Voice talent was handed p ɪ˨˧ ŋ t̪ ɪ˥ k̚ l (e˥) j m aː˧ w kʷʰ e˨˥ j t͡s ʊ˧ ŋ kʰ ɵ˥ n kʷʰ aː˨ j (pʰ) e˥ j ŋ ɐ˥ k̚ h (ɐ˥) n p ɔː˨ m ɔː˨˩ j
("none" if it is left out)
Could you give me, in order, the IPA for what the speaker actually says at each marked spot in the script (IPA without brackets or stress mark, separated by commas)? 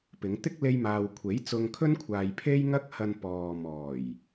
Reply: e˥, pʰ, ɐ˧